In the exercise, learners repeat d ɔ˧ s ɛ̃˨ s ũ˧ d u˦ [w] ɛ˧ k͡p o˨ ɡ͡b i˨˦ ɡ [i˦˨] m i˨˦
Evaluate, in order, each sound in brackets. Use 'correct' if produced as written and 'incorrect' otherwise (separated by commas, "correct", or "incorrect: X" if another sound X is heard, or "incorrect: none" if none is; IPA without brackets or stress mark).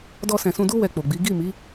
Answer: correct, correct